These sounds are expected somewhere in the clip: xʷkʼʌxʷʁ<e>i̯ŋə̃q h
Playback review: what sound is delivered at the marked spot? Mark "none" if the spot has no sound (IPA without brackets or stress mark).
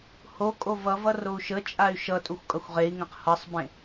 e